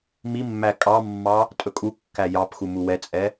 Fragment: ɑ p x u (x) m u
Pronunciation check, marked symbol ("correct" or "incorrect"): incorrect